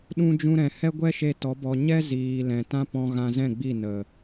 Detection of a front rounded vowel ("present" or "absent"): absent